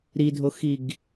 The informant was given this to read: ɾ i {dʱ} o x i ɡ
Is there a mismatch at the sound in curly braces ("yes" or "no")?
no